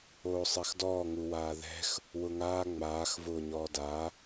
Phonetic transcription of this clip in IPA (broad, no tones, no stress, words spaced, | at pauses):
oːsˤɛxdɔː ŋuwaːðɛ̤x | wʊŋaː ŋ͡maːx vʊːɲɔːda